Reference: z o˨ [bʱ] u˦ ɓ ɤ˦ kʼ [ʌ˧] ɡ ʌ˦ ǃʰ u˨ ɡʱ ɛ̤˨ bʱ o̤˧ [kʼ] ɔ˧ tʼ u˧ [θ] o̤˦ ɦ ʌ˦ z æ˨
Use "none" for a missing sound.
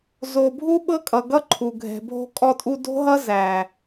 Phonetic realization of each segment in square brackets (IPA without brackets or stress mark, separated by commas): bʱ, ʌ˨, kʼ, d